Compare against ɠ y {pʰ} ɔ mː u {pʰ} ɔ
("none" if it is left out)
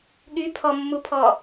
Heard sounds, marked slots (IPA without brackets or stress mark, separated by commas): pʰ, pʰ